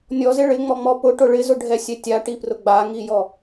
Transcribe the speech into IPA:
nʲɔzɪ ɭɪŋ͡mɔŋ͡mɔ pʊʈʊ ɭɪzʊɖʱɛsʲɛ tʲaʈiprʊ ɡ͡baŋijɔ

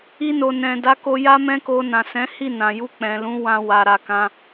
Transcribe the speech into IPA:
i˧no˨ nɛ̃˨da˨˦ko˧ ja˦mɛ̃˦ko˧ nã˨sɛ̃˨˦hi˦˨ nã˨ju˧ k͡pɛ̃˨lũ˨˦ wã˧ wa˨ɾa˨kã˧

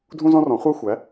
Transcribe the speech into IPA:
dʱũ˥zɔ̃˥rɔ̃˩˥ χʷæ˥xʷæ˩˥

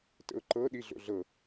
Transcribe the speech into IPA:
tə̰ʊ̯ǃɤ ɗiɮo̰ɮɤ

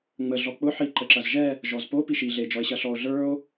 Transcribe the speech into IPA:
ŋ͡mə ɮɔk͡pʊ ħi ǃəǁɐzʒɛ | ʒɔzpo piʃi ɮe d͡ʒɔe̯ɕɐɬɔo̯ ɮə˞o̯

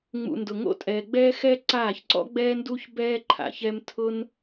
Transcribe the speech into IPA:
ŋ͡mṵ˨ndʊ˨ŋo̰˧tʼɛː˨ ɡ͡bɛː˧xɛ˧ ǀaː˦˨çǀɔ̰˦ɡ͡bɛː˦nduː˦ç bɛː˧ǃʰa̰˨çɛ˧m tʰʊ˦n

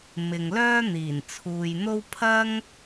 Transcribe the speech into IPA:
mɪ˨ŋlœː˥ n̪iː˨˩nt͡sʰuː˨jn̪o˥w pʰɐ˥ŋ

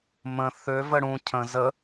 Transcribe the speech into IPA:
mə̃ θø vəɽũ cʰə̃ zə

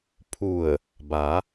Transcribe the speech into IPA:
pʰu˧˩ə̯ | ba˩˧

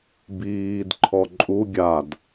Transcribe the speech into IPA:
biːd ǃʰɔǃʼu ɡʲad

